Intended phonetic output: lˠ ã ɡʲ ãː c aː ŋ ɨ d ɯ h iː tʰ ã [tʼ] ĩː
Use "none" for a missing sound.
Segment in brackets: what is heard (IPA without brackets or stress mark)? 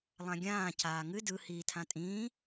tʼ